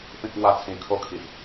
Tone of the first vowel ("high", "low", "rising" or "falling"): high